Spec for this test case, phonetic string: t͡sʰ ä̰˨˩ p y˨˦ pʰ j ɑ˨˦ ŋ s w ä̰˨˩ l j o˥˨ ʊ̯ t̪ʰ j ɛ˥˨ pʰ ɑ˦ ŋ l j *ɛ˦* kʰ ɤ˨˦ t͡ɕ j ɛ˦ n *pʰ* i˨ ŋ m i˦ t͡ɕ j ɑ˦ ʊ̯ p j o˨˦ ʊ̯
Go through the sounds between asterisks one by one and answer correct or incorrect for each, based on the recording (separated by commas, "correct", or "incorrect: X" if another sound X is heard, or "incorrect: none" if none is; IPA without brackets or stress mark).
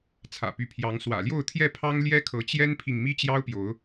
correct, correct